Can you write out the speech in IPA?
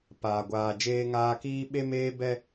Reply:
paː˨ɡʷaː˨ d͡ʒeː˦ŋaː˦ kiː˦ɓe˦meː˦ bɛ˦

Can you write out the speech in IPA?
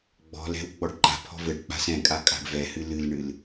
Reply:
ɡ͡bɔ̤lɛ̤w ɡ͡bɔɖǃa̤pʰɔ̤ vɘɖ k͡pa̤sɛ̃kʼa kʼa̤ɖvɛhɨ lɨlɳɨl

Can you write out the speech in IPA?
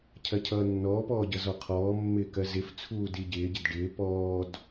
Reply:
cʰɜcʰʌːnːɔːpɔː ɟʌzɔqʰɔːmːɪː kɜzɪft͡sʰuː diɟɪːɟɪd ɖɪː pɔːd

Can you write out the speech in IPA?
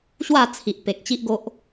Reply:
ɕwa˥˧ t͡sʰi˨ʔ pe˨k̚t͡ɕi˦ʔɡo˦ʔ

